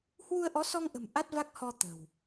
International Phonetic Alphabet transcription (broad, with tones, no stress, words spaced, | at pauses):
hwu˧ə̯ʔɔ˨˦sɔ˧ŋʔə̤˨˩m ʔa˦˥t̚va˦˥k̚hɔ˧ t̪ə̤˨˩w